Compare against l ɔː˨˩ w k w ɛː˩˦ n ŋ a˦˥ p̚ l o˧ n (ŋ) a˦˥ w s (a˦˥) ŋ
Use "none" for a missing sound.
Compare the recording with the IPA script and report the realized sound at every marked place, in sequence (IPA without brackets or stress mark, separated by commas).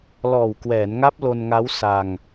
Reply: ŋ, a˧